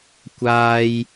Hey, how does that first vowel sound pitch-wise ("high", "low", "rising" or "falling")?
high